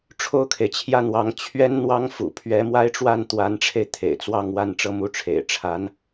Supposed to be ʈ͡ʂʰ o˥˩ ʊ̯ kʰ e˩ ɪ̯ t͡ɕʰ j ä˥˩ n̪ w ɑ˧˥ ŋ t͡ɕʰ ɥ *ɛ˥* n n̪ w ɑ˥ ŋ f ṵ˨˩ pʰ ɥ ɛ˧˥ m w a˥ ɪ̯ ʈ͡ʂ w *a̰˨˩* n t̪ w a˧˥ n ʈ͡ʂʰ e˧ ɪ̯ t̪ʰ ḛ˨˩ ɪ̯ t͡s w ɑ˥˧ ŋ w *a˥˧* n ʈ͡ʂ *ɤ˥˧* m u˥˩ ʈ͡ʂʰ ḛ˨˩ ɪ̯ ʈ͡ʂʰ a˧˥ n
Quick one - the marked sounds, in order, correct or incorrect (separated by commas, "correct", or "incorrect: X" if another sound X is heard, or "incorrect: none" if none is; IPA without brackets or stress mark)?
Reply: correct, incorrect: a˥˩, correct, correct